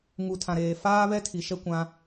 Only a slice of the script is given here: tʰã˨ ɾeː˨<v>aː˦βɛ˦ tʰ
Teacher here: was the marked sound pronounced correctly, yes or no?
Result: no